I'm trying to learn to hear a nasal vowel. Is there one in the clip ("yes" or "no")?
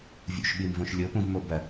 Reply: yes